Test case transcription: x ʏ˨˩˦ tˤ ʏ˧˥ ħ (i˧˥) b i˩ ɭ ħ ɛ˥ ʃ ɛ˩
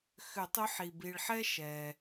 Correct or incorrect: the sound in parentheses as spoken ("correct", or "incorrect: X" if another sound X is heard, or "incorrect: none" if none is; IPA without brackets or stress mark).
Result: incorrect: i˩